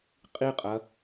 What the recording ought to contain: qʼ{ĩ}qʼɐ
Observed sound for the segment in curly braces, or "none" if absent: i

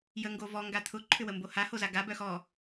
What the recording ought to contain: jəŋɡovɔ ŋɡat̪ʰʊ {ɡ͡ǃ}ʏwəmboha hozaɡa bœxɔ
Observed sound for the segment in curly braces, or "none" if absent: ǃʰ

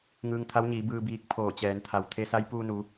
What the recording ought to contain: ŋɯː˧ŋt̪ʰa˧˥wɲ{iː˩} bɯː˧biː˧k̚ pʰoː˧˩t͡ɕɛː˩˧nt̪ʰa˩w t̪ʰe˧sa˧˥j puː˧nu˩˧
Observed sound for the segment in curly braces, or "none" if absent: iː˩˧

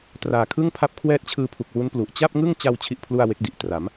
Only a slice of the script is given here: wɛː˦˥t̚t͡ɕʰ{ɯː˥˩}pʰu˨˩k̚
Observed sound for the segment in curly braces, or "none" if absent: ɯː˧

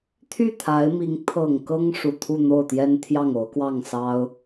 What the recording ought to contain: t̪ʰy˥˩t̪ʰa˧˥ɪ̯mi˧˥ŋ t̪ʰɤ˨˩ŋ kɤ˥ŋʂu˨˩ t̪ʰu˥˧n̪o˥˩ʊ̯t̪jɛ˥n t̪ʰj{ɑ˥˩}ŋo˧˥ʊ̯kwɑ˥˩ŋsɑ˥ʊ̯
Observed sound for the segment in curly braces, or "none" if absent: ɑ˥˩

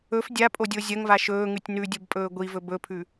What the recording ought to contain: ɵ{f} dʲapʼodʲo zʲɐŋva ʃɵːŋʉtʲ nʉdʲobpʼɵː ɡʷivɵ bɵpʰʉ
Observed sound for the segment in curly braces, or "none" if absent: f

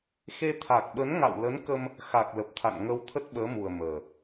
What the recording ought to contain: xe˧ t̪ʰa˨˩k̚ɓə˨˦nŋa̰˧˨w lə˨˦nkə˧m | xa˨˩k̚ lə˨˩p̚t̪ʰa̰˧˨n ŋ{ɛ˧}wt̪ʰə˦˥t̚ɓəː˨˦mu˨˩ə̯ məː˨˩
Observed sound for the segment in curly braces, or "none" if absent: ə˧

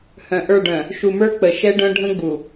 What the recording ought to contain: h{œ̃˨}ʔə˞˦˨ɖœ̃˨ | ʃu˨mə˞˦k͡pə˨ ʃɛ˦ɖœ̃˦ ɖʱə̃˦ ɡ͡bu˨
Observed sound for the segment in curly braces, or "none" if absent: œ̃˨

